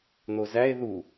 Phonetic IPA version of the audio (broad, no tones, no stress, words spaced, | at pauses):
n̪ozæe̯ ðu